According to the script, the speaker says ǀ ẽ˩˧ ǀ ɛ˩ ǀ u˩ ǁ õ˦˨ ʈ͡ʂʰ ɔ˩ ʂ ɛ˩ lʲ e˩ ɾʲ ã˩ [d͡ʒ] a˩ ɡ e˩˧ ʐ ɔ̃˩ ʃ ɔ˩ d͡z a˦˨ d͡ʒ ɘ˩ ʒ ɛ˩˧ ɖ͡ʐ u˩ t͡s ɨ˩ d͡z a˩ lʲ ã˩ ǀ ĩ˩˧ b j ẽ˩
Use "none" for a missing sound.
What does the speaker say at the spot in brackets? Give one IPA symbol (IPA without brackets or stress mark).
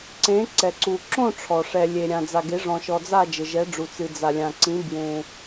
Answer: d͡z